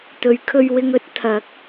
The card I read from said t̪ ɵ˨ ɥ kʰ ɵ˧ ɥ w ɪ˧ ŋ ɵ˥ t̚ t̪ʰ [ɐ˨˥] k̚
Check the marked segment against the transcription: correct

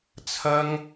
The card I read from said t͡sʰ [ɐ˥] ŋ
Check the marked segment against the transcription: correct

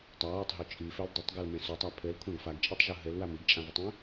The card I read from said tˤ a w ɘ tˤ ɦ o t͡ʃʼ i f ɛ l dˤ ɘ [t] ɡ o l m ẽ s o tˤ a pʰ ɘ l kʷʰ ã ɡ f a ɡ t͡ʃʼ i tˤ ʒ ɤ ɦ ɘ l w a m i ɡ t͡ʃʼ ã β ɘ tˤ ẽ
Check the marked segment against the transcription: incorrect: tˤ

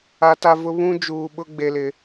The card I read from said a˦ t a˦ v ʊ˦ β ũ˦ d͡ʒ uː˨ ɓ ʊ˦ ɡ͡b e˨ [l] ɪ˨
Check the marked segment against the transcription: correct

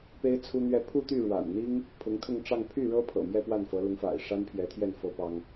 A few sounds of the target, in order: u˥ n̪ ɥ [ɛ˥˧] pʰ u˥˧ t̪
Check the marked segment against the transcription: correct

